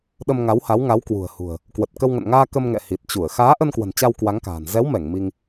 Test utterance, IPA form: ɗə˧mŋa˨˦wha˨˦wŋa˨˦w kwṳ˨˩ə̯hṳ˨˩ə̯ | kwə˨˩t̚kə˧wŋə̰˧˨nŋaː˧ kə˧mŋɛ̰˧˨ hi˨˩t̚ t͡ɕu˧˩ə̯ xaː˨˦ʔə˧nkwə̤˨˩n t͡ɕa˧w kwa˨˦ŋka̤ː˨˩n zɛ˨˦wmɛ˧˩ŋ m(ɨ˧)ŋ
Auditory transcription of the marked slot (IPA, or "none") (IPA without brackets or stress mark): i˧